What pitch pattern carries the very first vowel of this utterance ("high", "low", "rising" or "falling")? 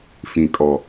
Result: low